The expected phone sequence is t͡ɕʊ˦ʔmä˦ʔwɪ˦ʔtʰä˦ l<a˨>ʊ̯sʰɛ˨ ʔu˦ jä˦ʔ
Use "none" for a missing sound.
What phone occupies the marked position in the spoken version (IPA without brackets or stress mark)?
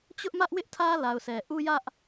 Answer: a˨